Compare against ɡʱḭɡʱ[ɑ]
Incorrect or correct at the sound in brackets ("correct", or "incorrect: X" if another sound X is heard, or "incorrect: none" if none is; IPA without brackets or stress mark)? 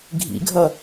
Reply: incorrect: ʌ